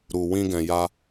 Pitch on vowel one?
low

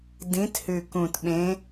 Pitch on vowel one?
rising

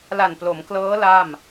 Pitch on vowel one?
low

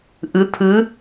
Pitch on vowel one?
rising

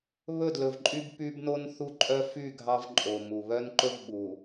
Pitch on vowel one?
falling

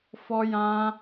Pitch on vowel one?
high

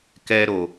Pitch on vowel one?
low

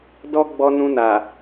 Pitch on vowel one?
high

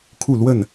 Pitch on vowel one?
falling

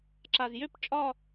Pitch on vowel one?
low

